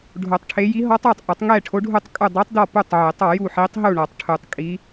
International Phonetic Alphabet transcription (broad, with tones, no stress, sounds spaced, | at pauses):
ɖʱ o˨˩˦ tˤ ʈʰ e˧˥ j i˧˥ ɦ ɔ˧˥ tˤ æ˥˨ tˤ ʔ ɐ˨˩˦ tˤ ŋ ɛ˥˨ ʈʰ o˧˥ ɖʱ u˥˨ tˤ kʼ u˥˨ dˤ i˧˥ tˤ d ɔ˥˨ p u˥˨ tˤ ʕ e˨˩˦ tˤ ɔ˨˩˦ j u˥˨ ħ i˧˥ tˤ ɦ u˥˨ ɳ ɔ˨˩˦ tˤ ʈʰ u˨˩˦ tˤ kʼ i˧˥